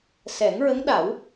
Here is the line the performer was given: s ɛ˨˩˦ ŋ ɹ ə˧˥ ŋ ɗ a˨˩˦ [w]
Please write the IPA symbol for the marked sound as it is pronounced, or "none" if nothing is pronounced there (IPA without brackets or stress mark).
w